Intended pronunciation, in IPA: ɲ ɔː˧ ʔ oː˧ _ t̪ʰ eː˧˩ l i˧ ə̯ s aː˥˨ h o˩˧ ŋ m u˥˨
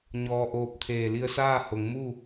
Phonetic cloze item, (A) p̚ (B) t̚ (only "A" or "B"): A